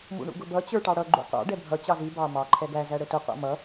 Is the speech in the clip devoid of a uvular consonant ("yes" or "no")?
no